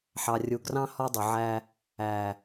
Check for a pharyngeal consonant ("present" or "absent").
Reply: present